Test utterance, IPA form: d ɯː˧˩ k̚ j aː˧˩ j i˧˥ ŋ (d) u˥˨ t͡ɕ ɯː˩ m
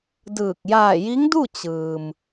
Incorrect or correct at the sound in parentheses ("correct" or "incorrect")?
correct